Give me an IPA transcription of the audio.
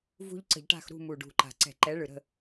v ṳ˦ ʎ ǀ ə̤˧˩˧ ʎ ʈ a̤˦˨ x ɾ ṳ˦˨ m u˨˩ ɖ ṳ˨˩ ǃ a̤˨˩ ǀ ɛ̤˧˩˧ ǃ ɛ˨˦ ɭ ɯ˨˩ ɾ ə̤˦˨

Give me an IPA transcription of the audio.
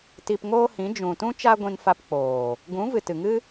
t i˧ p ŋ oː˦ h ĩ˨˦ d͡ʒ ũ˨ t ũ˦ t͡ʃ a˦ ɡʷ ĩ˧ n f a˧ p k͡p oː˨ | ɡ ũ˨˦ v ɨ˨ t ɨ˨ ŋ ɨ˦

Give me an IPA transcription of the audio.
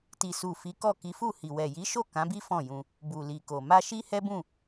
t i˨ s u˨ f i˨˦ k ɔ˦˨ k i˨˦ f u˦˨ h i˨ w ɛ˨ j i˨˦ ʃ o˦˨ k ã˨˦ b i˦ f ɔ̃˦˨ j ũ˧ | b u˨ l i˨ k o˨ m a˧ ʃ i˦ h ɛ˦ b ũ˦˨

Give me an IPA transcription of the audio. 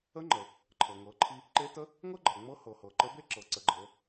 ə˧˥ ŋ͡ǃ ə˩ | ǃʰ ɤ˩ ŋ ɤ˩˧ ǃʰ i˧ | ǃ e˧˥ t ə˧˥ | ŋ ɤ˥ ɡ͡ǃ ɤ˩ ŋ͡m ɤ˧˥ h ɤ˩ h ɤ˩ ǃ ə˧˥ b e˥ ǁ ɤ˩˧ ǀ ə˩˧ ɡ͡ǃ ɤ˩˧

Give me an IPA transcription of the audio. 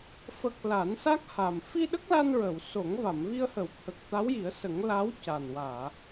f ə˨˩ k̚ l a˨˩˦ n s a˦˥ k̚ h a˨˩ m f i˧ ɗ ə˦˥ k̚ l a˧ n ɹ ə˨˩˨ w s o˨˩˦ ŋ v a˨˩˨ m v i˧ ə̯ h ə˨˩˦ w t̪ʰ ə˨˩ k̚ t̪ a˧˥ w j i˨˩˦ ə̯ s ə˨˩˦ ŋ l a˧˥ w c a˨˩ n w aː˨˩˨

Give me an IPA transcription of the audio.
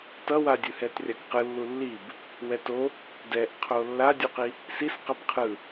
t ʌ w a dʲ ɯ h ɛ t rʲ a k q ɯ lː u lː i b | w ɛ t o | d ɛ ʔ qʰ o lː a dʲ u q i | s i s q ʌ b qʰ ɯ

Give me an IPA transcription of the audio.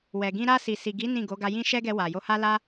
w ɛ˨ ɡ ĩ˧ ɾ a˧ s i˨ s i˨ ɡ i˨˦ n ĩ˦˨ ɡ o˨˦ ɡ a˧ j ĩ˦ ʃ ɛ˦ ɡ ɛ˧ w a˨ j o˧ h a˦ l a˦

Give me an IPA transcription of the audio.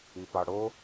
i p ɑ ɽ o

